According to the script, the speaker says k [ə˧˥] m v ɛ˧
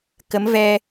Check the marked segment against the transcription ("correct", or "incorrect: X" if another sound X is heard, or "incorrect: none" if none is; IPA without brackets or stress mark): correct